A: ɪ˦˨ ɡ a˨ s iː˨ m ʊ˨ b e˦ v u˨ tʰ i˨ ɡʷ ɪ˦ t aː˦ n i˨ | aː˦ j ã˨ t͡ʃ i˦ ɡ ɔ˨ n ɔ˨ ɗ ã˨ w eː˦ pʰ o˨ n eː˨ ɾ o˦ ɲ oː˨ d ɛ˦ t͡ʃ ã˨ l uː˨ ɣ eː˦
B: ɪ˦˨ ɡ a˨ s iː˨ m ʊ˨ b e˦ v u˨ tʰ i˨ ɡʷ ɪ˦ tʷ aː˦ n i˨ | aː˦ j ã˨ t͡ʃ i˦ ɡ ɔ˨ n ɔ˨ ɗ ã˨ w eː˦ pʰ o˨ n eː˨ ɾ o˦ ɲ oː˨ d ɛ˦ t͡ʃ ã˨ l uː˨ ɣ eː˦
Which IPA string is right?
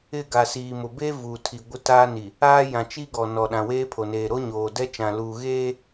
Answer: A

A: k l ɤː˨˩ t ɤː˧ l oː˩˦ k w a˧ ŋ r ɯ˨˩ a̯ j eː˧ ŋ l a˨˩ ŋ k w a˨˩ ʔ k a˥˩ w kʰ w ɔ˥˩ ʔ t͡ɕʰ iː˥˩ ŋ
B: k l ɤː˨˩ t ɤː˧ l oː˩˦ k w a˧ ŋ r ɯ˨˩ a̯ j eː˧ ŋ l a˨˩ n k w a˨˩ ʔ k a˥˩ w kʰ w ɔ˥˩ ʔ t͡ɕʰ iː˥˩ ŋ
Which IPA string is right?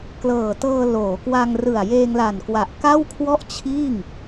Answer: B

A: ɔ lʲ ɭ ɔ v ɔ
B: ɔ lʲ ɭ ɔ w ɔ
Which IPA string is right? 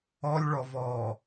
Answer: A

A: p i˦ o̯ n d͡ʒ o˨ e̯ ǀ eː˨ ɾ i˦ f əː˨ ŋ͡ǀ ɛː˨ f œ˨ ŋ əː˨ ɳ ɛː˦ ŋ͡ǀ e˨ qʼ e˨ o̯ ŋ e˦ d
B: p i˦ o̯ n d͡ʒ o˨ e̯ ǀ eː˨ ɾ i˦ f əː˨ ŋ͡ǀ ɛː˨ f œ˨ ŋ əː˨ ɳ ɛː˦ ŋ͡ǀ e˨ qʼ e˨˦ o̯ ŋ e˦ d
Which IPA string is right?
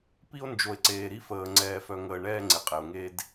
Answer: A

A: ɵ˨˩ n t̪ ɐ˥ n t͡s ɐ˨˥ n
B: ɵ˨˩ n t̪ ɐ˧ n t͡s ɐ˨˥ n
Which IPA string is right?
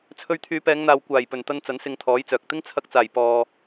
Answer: B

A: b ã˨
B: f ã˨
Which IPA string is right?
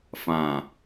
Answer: B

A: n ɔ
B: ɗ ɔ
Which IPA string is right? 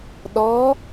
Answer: B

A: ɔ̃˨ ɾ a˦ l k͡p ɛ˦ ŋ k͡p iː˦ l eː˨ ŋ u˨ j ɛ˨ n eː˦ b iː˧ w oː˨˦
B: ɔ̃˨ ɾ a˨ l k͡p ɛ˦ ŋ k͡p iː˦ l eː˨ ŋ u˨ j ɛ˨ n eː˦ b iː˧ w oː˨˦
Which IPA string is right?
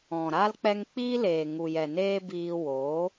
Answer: A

